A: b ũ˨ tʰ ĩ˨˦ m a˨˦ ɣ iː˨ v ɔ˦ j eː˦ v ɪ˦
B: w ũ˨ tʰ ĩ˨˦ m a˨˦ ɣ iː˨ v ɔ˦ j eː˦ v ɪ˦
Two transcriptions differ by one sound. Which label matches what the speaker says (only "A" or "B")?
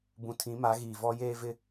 A